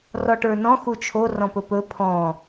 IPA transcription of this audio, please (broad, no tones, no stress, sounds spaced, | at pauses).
r ɔ ʈ ə˞ n ɔ̃ x u t͡ʃʰ o r ɔ̃ p ɵ p ɵ pʰ ɔ̃